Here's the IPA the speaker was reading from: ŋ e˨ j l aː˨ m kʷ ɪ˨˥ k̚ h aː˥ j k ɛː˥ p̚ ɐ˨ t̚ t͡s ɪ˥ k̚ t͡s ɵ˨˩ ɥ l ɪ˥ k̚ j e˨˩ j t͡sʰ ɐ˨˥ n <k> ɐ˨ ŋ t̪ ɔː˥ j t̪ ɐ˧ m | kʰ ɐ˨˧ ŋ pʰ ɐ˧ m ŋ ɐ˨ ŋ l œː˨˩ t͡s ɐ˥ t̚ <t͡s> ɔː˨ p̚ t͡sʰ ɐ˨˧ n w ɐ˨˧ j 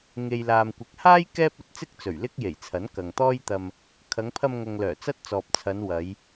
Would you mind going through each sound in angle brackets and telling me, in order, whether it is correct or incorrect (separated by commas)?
correct, correct